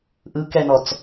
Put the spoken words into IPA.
ʔɯkɛnɔt͡s

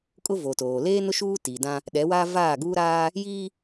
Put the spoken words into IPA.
kʼʊ˦vo˨toː˨ leː˦nʊ˦ ʃuː˦tiː˨dã˦ | ɗɛ˨˦waː˦ vaː˦˨ɡuː˦ɾaː˦ | jiː˦

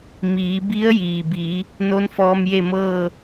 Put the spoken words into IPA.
miː˩˧bi˧˥ə̯jiː˩bi˩˧ | no˧˥nfɔː˧mje˥˨mɤː˥˨

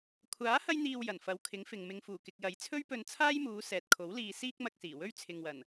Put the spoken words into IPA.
kʷʰaː˨˥ hɐ˥jn̪iː˧w jɐ˨˩nfɐ˨˧wkʰɪ˨˥ŋfɪ˨ŋ mɪ˨ŋfuː˨˩ kɪ˨k̚jɐ˨˥jt͡sʰɵ˥ɥpɵ˧n t͡sʰaː˥jmuː˨˧ sɛː˨t̚kʰo˨˥wliː˧ siː˥k̚mɐ˧k̚ siː˨˩wɵ˥ɥ t͡sʰɪ˨ŋwɐ˨˩n

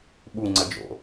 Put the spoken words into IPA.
ɓu ŋ͡ǀəd͡ʒo̰

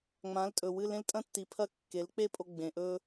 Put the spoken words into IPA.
ŋ͡mã˩˥ltʼɵ˩ wɨ˧lẽ˥l tʼɐ̃˥tːi˩˥pʰɐ˥˩ kːe˩˥lk͡pe˥pʼo˧ ɡ͡bẽ˩ʔɵ˧

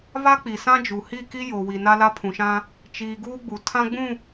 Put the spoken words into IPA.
βa˦k͡pi˨sã˦d͡ʒu˨ hi˦˨ki˦ jo˨wi˨ na˦la˦pʰũ˨ʃã˦ | t͡ʃiː˨ ɡuː˦ɡ͡bu˨ tʰã˦ɡ͡bũ˦˨

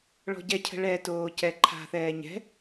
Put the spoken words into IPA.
ɭɔ̤ɟɛcʰə̤ ɭɛ toːcɛǃʰa̤θɛː ɲɛ̤

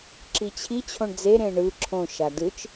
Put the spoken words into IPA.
ǁit͡ɕʰi t͡ɕʰõɳd͡ze ɾẽɳɯ ǁʰõ ʃadɯt͡ʃ

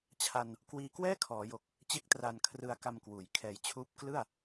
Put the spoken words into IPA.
t͡ɕʰa˧n | kwiː˧kwɛː˥˩ kʰɔː˩˦jo˨˩k̚ | t͡ɕe˦˥k̚tra˨˩n kʰrɯ˧a̯ka˧mkwuː˩˦j kʰɛː˨˩jt͡ɕʰuː˦˥p̚ klɯ˥˩a̯

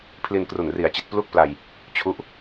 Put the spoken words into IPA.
pʰli˧nkru˨˩nri˨˩a̯t͡ɕi˨˩t̚ plu˥˩k̚pla˧j | t͡ɕʰu˦˥ʔ

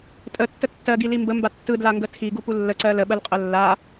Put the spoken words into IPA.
tʼətːə tːɜɡili mbəmba tːɯdlaŋɡə tʰiɡupu lːəǀɜ ləɓɜlqʼɜ lːa

